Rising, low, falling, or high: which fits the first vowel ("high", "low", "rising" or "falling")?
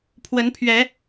rising